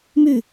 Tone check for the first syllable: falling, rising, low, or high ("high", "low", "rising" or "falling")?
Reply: falling